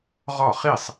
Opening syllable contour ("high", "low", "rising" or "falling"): falling